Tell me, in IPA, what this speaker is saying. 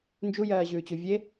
n d͡ʒ u j ɜː ʑ ʉː t͡ɕ u vʲ e

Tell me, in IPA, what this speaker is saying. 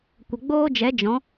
kʷ ə˨ ɡ͡b oː˦ d͡ʒ ɛ˨˦ d͡ʒ ɔ̃˨˦

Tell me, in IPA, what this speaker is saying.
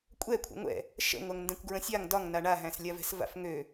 kʷʼ ɛ kʷʰ ɛ̰ ŋʷ ɛ̰ | ʃ ə̰ ŋʷ æ ŋ n d ɛ̃ kʷ ɡ ɹ ə̃ sʲ a ŋ d ɒ ŋ n a ɳ a ɦ æ̃ s lʲ a v ɛ̤ s v a̰ f ŋ ø

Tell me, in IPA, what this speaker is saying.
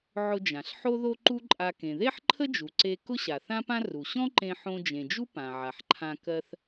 ʕ ʊ˧ d͡ʒ ã˩ ɬ ħ o˥ ð o˥ ǃ u˥ ǃʼ a˧ k ẽ˩ ð e˥ ħ ǃʰ ə˥ d͡ʒ u˩ ǀ e˧ k ʊ˥ ɕ a˩ θ ã˥ p ã˥ r u˩ ɕ ɔ̃˥ ǃ ẽ˧ ħ õ˧ d͡ʒ ẽ˩ d͡ʒ u˥ p ã˩ ʕ a˩ ħ ǃʰ ã˧ k ɜ˧ θ

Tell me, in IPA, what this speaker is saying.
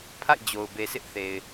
pʰ a̰˦˨ ɪ̯ d͡ʑ o˨ ʊ̯ b e˨ s ɪ˦ ʔ θ e˨ ɪ̯

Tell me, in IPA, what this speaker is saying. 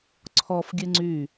ǀʰ ɔ f ɡʲ ɨ ŋ͡ǀ y

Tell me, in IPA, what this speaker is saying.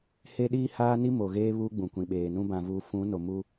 h e˦ ɗ iː˦ h aː˦ n i˦ m o˨ ɣ eː˦ β uː˦ ɡ͡b ũ˨ kʷ ĩ˨ ɓ eː˨ n ũ˦ b ã˨ v uː˨ f ũ˨˦ n o˨ m u˦

